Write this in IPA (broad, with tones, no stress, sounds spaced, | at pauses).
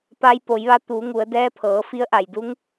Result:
p a˧ j p o˩˧ j ʋ a˧ t̪ u˩˧ ŋ u˩˧ ə̯ d ɛː˧˥ pʰ ɤː˩˧ f i˧˥ ə̯ ʔ a˩ j d u˧˥ ŋ